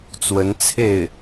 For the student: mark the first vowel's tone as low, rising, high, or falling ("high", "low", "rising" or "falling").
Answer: rising